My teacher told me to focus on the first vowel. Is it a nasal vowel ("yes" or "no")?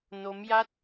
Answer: no